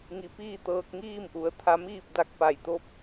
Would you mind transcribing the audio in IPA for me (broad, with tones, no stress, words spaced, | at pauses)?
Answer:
ŋi˩˧piː˥˨t̪ɤː˧k̚ ŋiː˥˨mʔu˩˧ə̯t̪ʰa˧ miː˥˨p̚da˧k̚pa˧˩jt̪o˥˨p̚